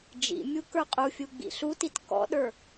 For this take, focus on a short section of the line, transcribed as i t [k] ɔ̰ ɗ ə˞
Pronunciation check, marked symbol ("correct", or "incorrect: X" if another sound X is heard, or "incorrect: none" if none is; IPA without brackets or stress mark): correct